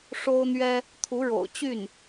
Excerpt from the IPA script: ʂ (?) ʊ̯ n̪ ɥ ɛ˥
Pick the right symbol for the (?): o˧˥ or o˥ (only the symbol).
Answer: o˥